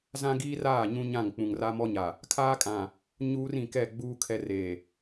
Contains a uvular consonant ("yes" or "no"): no